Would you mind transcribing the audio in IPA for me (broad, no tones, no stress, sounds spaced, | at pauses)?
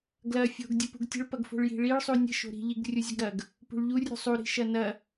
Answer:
ɡ l ɐ fʲ o̤ ɡ dʲ ə p ṳ ɡ tʲ ə̤ ɭ p ɐ ɡ f o̤ ɭ j i̤ ɭ i ɭ sˤ u nʲ ə̤ ʃ o̤ ɾ i̤ ʎ i ɡ rʲ u zʲ ə ɡ ɾ ɐ ɡ | p ṳ ɭ ʎ u rʲ ṳ sˤ u ɾ i̤ ʃ ɐ n ɐ